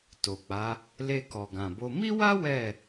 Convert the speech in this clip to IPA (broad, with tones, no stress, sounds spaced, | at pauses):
t o˨ k͡p a˨˦ | l e˧ k ɔ˨ ɡ ã˨ b o˧ m i˦ w a˦ w ɛ˦˨